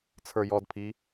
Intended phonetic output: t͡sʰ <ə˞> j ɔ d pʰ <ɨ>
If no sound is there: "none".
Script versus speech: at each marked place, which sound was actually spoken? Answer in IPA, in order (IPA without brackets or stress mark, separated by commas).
ə˞, i